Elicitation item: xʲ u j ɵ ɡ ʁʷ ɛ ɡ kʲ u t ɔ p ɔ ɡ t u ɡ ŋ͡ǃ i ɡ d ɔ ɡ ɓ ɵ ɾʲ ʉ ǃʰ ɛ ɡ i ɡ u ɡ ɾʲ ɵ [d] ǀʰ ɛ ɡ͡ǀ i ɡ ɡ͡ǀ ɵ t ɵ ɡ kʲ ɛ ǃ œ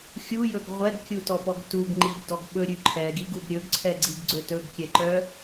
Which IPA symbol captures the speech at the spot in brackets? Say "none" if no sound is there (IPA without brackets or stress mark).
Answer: ɡ